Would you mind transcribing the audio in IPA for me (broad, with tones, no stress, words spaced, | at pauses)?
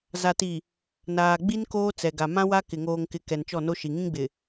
za˨ti˨ | naː˨ɡ͡bi˦n koː˦t͡sɛ˨ɡa˨ mã˦wa˦ kɪ˨ŋoː˨ŋkɪ˨ kɛ˨nt͡ʃɔ˦˨no˦ʃi˨ ŋĩ˦ɡ͡bɪ˨